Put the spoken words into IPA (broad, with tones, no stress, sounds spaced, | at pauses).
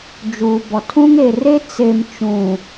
d͡ʒ uː˨ b ɔ˨ tʰ ũ˦ ŋ e˨ r e˦ t͡s e˨ m t͡ʃ ũ˨